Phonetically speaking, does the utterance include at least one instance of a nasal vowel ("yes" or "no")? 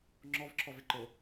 no